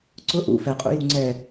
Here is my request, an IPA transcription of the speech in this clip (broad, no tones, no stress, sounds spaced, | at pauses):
ǀ ʊ ʔ ṵ f ɛ qʼ ṵ j u ŋ͡ǀ ɛ